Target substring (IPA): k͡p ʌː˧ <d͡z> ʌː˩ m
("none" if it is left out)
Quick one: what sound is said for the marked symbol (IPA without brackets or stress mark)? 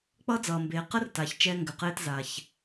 d͡z